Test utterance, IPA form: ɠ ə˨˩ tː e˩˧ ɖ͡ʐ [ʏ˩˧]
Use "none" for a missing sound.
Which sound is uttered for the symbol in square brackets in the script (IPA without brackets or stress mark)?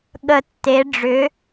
ʏ˩˧